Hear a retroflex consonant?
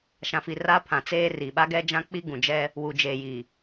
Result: no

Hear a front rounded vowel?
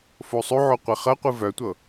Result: yes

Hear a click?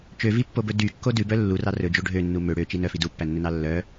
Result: no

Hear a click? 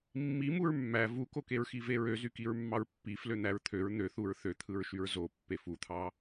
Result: no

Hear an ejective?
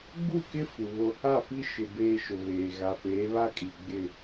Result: yes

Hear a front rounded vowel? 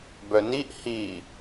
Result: yes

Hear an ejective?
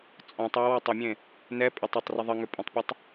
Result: yes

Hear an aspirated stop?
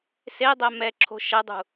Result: yes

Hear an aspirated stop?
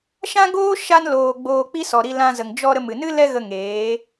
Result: no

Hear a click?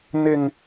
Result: no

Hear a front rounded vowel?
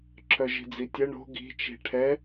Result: yes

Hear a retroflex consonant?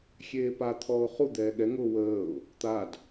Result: no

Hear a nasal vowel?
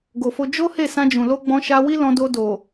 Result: yes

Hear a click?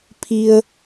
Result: no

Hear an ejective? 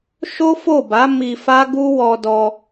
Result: no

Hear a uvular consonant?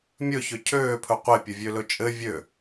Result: yes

